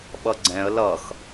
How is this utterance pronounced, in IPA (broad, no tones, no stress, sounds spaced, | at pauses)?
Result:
ɓ ʌ ɡ͡ǀ ɛ̃ ə̯ l ʌ x